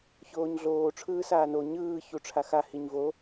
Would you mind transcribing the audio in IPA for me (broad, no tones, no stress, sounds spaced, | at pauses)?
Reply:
ç oː ɲ ɮ oː ʈ͡ʂʰ ɯː s aː n o ɲ ɯː ç u ʈ͡ʂʰ a x a h i ɲ v o